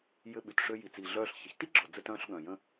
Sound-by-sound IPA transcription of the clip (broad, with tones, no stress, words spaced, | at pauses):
jɘ˧ɓy˩t ʂø˧ji˩t͡si˩ɮœː˧ɬ çə˩çti˥ɡ͡ǁɔ˩ d͡zɘ˧tœ̃ː˧ɬ ɠœ̃˩jə̃˧